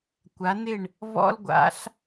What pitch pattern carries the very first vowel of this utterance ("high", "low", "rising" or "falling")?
rising